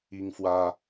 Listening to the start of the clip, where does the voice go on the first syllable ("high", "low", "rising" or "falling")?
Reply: high